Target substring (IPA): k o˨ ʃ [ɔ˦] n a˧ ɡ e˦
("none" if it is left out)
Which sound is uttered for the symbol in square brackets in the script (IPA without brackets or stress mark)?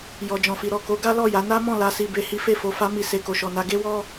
ɔ˨